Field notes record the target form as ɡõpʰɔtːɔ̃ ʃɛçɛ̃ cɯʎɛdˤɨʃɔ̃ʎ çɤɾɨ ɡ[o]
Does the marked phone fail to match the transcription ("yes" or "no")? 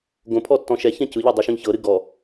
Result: yes